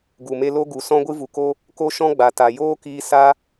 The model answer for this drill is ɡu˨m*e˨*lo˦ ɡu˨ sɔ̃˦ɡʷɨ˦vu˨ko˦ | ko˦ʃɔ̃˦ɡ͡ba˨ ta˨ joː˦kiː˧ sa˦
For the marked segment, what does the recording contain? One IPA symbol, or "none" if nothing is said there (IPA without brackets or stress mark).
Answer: e˧